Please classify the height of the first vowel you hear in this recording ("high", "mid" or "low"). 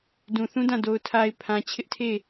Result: high